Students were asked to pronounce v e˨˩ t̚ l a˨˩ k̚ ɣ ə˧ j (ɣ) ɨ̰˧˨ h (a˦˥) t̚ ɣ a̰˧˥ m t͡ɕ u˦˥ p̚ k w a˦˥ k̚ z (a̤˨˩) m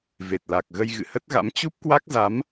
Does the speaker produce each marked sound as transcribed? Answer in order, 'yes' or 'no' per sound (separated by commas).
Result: yes, no, no